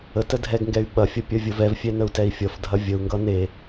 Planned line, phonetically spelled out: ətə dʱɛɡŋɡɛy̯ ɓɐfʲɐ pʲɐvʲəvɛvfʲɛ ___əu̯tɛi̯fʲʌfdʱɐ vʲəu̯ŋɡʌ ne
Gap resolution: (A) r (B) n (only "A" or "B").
B